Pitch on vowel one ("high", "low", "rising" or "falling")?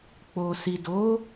low